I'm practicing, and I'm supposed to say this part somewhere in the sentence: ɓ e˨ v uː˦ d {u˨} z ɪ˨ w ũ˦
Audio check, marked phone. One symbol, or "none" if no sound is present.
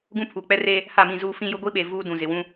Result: ũ˨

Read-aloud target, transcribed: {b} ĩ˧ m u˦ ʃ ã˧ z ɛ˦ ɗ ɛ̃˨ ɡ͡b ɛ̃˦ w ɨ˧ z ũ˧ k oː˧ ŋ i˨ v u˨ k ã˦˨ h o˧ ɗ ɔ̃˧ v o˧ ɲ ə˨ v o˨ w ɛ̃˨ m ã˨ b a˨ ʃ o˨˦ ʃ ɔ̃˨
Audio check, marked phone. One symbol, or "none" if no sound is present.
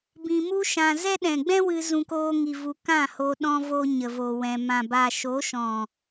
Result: b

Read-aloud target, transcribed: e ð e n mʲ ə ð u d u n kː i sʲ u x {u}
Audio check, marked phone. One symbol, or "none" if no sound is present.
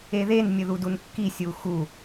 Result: u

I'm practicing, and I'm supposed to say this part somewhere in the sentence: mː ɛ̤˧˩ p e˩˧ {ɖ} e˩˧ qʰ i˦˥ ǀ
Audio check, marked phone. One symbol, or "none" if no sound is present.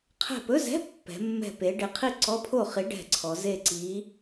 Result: ɖ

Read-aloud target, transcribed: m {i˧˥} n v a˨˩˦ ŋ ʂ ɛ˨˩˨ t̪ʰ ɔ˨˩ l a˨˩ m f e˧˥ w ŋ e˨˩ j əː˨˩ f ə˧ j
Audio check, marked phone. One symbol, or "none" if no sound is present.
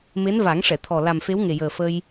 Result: e˧˥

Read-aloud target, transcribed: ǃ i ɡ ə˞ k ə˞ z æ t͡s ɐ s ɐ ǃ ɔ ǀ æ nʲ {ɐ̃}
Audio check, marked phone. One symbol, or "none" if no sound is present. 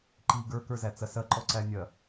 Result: ɐ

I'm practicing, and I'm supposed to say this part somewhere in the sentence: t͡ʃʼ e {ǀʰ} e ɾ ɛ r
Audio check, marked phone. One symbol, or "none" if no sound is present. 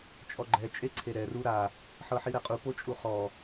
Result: ǀʰ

